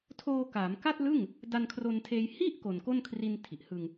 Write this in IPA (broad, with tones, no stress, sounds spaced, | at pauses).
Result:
tʰ oː˧ k aː˩˦ m k a˥˩ t̚ l ɯ˥˩ ŋ | d a˧ n kʰ r o˧ n tʰ eː˧ j h i˥˩ ʔ k o˨˩ n k o˥˩ n kʰ r i˧ n tʰ i˨˩ ʔ h ɯ˧ ŋ